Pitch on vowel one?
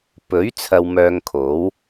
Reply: rising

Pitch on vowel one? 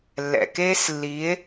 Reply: low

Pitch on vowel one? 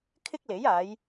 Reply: high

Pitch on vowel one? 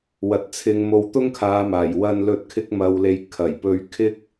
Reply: rising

